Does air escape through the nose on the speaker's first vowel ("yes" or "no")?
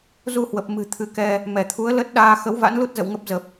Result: no